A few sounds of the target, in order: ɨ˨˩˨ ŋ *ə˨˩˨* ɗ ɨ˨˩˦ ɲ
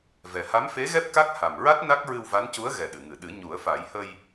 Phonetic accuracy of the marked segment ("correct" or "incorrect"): incorrect